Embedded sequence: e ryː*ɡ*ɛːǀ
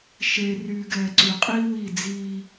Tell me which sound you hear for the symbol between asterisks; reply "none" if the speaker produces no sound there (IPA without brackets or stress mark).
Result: ɡ